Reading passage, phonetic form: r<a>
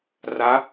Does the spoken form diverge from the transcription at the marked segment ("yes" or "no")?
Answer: no